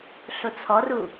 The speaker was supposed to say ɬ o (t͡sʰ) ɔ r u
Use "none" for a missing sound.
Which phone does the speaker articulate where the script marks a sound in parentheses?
t͡sʰ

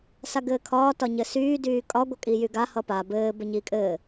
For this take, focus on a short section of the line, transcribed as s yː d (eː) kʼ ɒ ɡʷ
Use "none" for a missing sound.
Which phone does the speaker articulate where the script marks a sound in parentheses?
yː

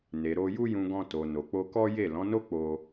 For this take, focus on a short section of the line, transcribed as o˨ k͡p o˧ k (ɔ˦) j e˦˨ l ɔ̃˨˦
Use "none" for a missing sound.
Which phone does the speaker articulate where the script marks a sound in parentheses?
ɔ˦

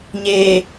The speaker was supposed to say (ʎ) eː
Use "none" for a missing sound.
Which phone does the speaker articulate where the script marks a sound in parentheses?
ɲ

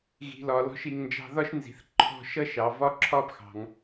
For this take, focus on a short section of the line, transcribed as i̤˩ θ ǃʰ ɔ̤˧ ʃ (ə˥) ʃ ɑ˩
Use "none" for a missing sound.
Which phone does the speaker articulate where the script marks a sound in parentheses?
ʌ˥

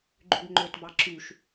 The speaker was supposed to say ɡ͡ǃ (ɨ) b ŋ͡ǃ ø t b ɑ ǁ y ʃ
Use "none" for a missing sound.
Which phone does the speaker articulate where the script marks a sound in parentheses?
y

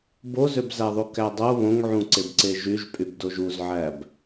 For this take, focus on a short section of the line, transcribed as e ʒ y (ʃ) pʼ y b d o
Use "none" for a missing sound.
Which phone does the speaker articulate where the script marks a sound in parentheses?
ʒ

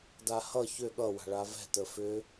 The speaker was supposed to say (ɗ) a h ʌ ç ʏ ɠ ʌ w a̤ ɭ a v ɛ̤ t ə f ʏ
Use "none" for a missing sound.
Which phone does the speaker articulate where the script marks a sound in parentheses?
d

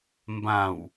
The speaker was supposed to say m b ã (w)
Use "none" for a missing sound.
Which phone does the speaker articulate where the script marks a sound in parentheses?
w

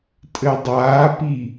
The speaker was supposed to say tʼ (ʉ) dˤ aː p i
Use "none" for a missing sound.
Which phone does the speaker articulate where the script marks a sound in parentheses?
ɘ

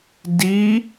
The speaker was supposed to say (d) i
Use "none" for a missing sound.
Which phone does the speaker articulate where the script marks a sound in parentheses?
d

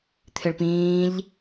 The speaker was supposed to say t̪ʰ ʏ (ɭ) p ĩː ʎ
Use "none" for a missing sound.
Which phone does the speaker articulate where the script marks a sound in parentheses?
ɭ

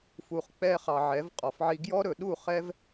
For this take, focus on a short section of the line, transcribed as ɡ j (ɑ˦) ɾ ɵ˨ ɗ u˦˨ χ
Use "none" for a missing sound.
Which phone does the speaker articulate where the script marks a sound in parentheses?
ɔ˦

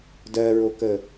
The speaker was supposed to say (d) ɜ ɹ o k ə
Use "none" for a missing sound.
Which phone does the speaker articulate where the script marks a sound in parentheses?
d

